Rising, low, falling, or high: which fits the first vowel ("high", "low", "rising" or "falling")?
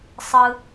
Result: high